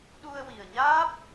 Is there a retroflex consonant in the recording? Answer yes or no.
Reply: no